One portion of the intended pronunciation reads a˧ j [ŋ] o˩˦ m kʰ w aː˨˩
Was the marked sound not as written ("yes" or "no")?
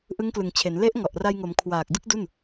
no